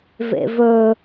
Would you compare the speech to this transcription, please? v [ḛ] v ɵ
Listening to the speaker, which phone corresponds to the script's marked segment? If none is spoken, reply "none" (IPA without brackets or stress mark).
ḛ